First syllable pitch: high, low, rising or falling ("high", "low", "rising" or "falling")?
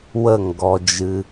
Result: falling